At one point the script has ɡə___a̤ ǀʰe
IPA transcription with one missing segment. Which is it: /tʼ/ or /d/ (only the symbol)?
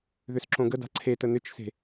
d